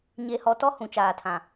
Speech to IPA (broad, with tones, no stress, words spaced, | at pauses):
ɲe˨hɔ˨ tɔ˦hũ˨t͡ʃaː˨tʰã˨